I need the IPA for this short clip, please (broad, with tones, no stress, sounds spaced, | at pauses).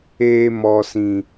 eː˧ m ɔ˨ s ĩ˨